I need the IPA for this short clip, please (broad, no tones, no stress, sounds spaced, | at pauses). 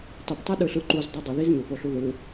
tˤ i p tˤ ɛ ɗ ɯ ɬ ɯ ǃ u z dˤ ɛ dˤ ʌ ð i z ɲ u p o ɬ u ð ɯ